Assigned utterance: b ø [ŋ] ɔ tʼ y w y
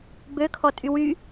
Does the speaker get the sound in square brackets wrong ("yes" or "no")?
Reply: yes